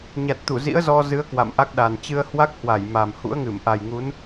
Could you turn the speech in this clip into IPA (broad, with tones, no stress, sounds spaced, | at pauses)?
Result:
ɲ a˨˩ t̚ t̪ u˧˩ z ḭ˧˥ ə̯ z ɔ˧ z ɨ˨˦ ə̯ k w a̰˧˨ m ʔ a˦˥ k̚ ɗ a˨˩ n t͡ɕ ɨ˧ ə̯ h w a˦˥ k̚ h w a˧˩ j m a˨˩ m h ṵ˧˥ ə̯ ŋ ɨ˧˩ m ʔ a˨˩ j ŋ u˨˦ n